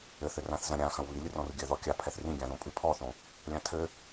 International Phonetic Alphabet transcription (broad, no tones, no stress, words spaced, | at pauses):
ɘθɘ rãθzɐ̃ɾʲã xɐ̃wβilʲɨrɔ̃r ɡʲɘ ðɔkʲa pʰɛθrĩɡʲãðõ pʼɨpʰɔθõ | lʲãtʰɘ